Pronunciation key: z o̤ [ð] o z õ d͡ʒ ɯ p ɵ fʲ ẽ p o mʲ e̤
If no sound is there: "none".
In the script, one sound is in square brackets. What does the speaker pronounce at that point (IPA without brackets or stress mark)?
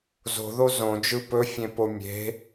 ð